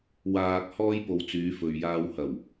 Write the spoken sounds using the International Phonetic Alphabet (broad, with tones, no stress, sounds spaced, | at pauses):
w aː˨ k̚ h ɔː˧ j p o˨ w t͡s yː˨˧ f ɵ˨ ɥ j aː˧ w h ɐ˨˩ w